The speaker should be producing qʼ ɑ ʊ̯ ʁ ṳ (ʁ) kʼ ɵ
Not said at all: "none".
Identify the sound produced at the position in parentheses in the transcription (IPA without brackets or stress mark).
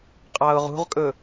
ʁ